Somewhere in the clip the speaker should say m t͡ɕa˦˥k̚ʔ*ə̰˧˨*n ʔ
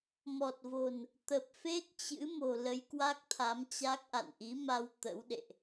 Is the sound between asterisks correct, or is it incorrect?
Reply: incorrect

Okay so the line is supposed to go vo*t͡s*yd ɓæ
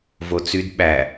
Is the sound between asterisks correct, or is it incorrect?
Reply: correct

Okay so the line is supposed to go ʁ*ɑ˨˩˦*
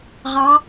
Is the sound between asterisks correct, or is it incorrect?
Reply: incorrect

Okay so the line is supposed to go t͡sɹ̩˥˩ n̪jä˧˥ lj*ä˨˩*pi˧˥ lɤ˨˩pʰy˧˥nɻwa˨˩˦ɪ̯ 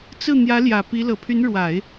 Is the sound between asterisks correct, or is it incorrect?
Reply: correct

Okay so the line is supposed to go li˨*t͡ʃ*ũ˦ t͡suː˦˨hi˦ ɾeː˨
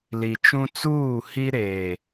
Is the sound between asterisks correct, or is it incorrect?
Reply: correct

